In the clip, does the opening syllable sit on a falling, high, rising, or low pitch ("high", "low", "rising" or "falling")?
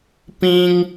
high